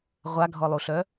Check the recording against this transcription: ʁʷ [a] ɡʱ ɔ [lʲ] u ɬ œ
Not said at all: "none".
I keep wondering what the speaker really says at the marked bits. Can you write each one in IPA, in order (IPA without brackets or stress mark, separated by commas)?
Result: a, lˠ